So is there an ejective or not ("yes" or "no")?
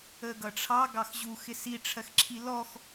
no